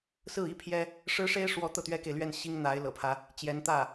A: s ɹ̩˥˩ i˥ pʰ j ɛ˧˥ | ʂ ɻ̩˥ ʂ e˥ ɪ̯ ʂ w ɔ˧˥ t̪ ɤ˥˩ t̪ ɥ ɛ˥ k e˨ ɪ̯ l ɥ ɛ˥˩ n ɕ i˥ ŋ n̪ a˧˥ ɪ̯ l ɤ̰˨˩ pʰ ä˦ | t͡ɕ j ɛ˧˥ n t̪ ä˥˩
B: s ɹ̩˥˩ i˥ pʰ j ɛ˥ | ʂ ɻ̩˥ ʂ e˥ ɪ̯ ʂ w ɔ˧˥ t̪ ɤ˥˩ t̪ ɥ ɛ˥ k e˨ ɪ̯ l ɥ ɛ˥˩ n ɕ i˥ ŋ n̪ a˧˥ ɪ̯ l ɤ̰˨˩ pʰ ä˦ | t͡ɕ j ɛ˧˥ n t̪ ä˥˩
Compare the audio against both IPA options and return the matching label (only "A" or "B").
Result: B